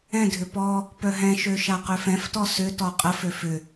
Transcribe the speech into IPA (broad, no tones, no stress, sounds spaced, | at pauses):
ɛ̃ dʱ ʏ p ɔ | p œ ɦ ɛ̃ ʃ ø ʃ a q ø f ɛ̃ f t ɔ s ʏ t ɔ qʼ ə f ø f ʏ